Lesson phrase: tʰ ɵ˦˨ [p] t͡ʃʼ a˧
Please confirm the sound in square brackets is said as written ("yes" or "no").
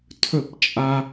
yes